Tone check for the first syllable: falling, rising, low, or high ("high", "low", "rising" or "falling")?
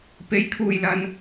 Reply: rising